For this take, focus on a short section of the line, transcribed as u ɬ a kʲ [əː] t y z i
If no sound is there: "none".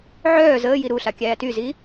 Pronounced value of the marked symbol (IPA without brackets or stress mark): æː